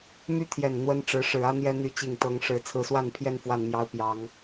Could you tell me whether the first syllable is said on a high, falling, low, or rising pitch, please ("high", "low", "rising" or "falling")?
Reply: high